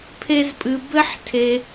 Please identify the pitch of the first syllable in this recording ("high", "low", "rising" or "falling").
high